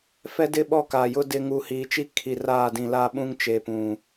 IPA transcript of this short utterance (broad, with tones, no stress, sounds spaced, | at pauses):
f ɛ˦ d ɪ˦ ɓ ɔ˦˨ k aː˨ j ʊ˦ d ɪ˦ ŋ u˨ h iː˨ t͡ʃ i˦ kʰ i˨ r aː˦˨ d ĩ˨ l a˦ ɓ ũ˦ ŋ t͡ʃ e˨ p ũ˨